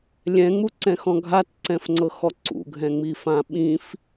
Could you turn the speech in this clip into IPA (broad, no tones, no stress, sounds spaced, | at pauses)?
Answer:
lʲ ɛ̃ ŋ͡m u ǀ ɛ̃ x ɔ̃ ɡʱ a t ǀ ɛ̃ f ŋ͡ǀ ɤ x ɔ ǀ ṵ ɡʱ ɛ̃ ŋ͡m i f ã ɓ ĩ f